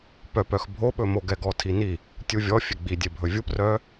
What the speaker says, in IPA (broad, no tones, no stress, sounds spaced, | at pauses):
p œ p œ x bʱ o ɓ ɵ m o ɡ ɛ ɡ ɔ tʰ i n i | tʲ u vʲ ɔ fʲ e ɡ͡b i dʲ e bʱ ɵ vʲ u p r œ